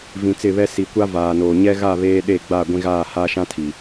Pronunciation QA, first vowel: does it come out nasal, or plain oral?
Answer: nasal